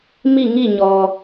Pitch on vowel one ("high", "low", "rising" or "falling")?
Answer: falling